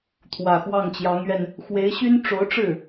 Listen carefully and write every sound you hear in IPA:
t̪ʰ w ä˨˩ x w ɑ˥˩ ŋ t͡ɕ j ɑ˧˥ ŋ ɥ ɛ˧ n | x w e˧˥ ɪ̯ ɕ y˥ n ʈ͡ʂ o˧˥ ʊ̯ ʈ͡ʂ ɻ̩˥˩

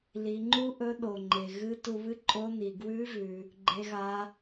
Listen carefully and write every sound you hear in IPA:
l i˩˧ ŋ͡ǃ u˥ ʔ ɵ˧˥ ɗ o˩ ŋ͡ǃ e˩ ɣ ɨ˧˥ t u˧ β ɨ˥ ǃʼ o˧˥ n i˩ ɡ w ʉ˧˥ v ʉ˩ | ɡ͡ǃ e˧˥ ɣ a˧˥

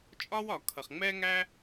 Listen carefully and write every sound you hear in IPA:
t͡ʃʼ ɒ˥ w ɒ˩ kʰ ʌ˩ χ ŋ͡m ɛ˥ ŋ æ˥

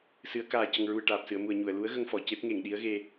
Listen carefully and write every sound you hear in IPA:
s ɨ˨˩˦ ə̯ k aː˨˩ c ə˨˩ ŋ ɹ u˨˩ ə̯ ʈ aː˨˩ p̚ s ɨ˨˩˨ ə̯ m u˨˩ ə̯ ɲ u˨˩˨ ə̯ l u˧˥ ə̯ ɣ ə˧ ŋ f ɔ˨˩˨ c e˦˥ p̚ ŋ e˨˩˨ ŋ ɗ i˧˥ ə̯ ɣ e˧

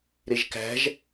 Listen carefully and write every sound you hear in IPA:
ɾ e ʒ k æ̤ ʒ

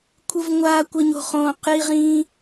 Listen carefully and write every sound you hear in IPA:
kʷʰ ɯ˥ v ŋʷ aː˥ kʷ ɘ˥ ɲ o̤˥ χ õː˥ q j i˥ ʁ ĩː˥

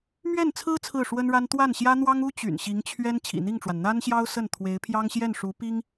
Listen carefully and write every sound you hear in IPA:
m ɥ ɛ˥˩ n t͡sʰ ɹ̩˥ t͡sʰ ɹ̩˥˩ ʂ w ə˥ n ɻ a˥ n t̪ w a˥˩ n ɕ j ä˥ n̪ w ɑ˥ ŋ u˥ t͡ɕ y̰˨˩ n ɕ i˧˥ ŋ t͡ɕʰ ɥ ɛ˥ n t͡ɕʰ ḭ˨˩ n̪ i˥˩ ŋ ʈ͡ʂ w a˩ n n̪ a˥ n ɕ j ɑ˥ ʊ̯ s ə˥˩ n t̪ʰ w e˧˥ ɪ̯ pʰ j ɑ˥ ŋ ɕ j ɛ˥˩ n ʂ u˧˥ p i˥ ŋ

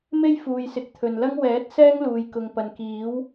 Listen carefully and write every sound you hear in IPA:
m e˥ j f uː˧ j s ɪ˨˥ k̚ t̪ʰ ɵ˨ n l ɐ˥ ŋ w ɛː˨˥ t̚ s ɛː˥ ŋ l uː˨ j k ʊ˨ ŋ p ɐ˨ n k iː˨˥ w

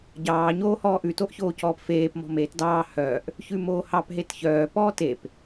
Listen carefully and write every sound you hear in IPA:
ɟ ɑː ɲ oː h ɔː ʔ ʉ t o ʔ ç oː c ɔː p f eː p m ɔ̤ m eː t d ɑː h œː ʔ | ç ʉ m oː h ɑ p ɦ e t ç œː p ɔː t e p

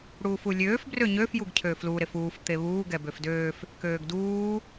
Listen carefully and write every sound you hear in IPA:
ɽ uː f u lʲ øː f b r ø ɲ ø f j u ɡ cʰ ø f l u ɾ e f uː f t̪ e β uː ɡ ɛ b ø f d øː f | k øː ɡ d uː

